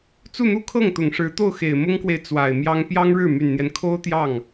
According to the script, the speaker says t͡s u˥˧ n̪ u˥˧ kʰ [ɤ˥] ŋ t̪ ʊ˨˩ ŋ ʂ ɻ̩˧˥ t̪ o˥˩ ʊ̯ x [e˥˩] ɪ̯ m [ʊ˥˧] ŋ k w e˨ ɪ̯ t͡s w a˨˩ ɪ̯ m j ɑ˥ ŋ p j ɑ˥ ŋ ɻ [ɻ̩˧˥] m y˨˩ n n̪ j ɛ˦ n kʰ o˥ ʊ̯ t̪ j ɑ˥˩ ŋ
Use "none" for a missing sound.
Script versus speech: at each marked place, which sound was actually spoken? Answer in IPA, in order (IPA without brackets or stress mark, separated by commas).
ɤ˥˩, e˨˩, ʊ˥, ɻ̩˥˩